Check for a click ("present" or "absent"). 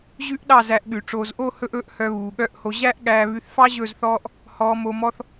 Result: absent